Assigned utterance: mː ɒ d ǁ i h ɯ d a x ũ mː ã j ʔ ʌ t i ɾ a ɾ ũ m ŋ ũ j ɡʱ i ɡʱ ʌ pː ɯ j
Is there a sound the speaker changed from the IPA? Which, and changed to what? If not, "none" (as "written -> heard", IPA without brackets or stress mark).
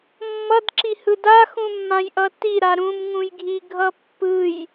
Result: ɒ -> ʌ